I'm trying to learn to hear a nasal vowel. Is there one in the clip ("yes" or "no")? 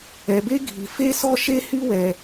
no